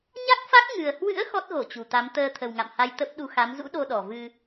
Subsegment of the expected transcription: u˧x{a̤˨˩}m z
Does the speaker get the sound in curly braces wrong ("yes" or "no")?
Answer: yes